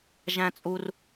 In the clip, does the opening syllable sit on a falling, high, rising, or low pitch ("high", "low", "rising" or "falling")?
high